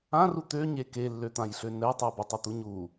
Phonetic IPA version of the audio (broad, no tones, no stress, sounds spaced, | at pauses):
ã r u t̪ ø ɲ e k e lː ø t̪ ã j ɬ ø n ɛ tˤ y b ɛ tˤ u t̪ u ɲ u